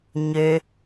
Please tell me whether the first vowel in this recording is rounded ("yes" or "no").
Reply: yes